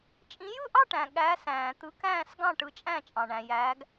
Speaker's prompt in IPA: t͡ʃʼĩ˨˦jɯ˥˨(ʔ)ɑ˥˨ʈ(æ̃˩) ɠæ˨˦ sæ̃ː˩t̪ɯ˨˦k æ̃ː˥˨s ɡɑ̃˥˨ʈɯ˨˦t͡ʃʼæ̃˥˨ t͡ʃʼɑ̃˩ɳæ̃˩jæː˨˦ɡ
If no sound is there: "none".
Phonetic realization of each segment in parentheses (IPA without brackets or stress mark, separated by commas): ʔ, æ̃˩